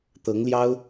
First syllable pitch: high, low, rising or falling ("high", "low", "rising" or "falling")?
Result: rising